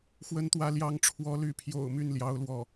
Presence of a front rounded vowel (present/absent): present